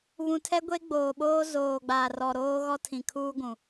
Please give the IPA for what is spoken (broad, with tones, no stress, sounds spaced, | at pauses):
β ũ˨ tʰ ɛ˦ ɡʷ e˦ ɡ͡b oː˨ ɓ oː˦ z oː˨ ɡ͡b aː˨ r ɔ˨ ɾ oː˦ ɣ ɔ˦ tʰ ĩ˨ kʰ uː˦ ɡʷ ũ˨